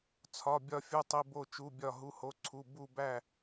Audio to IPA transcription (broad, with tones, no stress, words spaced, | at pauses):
t͡sʰɒ˩˧˩ bʲɒ˧˩fʲu˩˧˩tˤi˩˧˩ bo˧˩t͡ʃu˩˧˩bʲɒ˧˩ ɦu˩˧˩ho˩˧˩ǀʰu˩˧˩ bu˧˩bæ˧˩